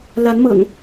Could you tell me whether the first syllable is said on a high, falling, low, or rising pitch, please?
rising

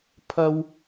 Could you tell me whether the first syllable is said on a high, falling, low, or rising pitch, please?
high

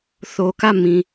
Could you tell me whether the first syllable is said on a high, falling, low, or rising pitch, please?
low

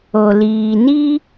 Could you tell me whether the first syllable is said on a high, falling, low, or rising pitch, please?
low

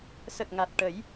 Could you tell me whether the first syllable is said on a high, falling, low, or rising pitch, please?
low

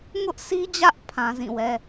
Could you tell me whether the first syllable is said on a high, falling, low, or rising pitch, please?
high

